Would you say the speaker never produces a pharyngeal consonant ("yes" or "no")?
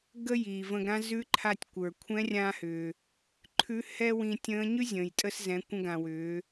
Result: yes